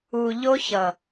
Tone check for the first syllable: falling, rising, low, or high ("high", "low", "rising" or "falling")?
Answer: low